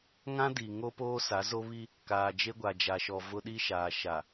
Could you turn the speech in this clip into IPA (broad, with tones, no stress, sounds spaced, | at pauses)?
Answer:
ŋ ã˦ d i˨ ŋ o˦ p oː˦ s a˨˦ z o˦ β i˦ | k aː˨ d͡ʒ e˦ ɡʷ a˨ d͡ʒ a˨ ʃ ɔ˨ v ʊ˦ ɗ i˦ ʃ aː˨ ʃ a˨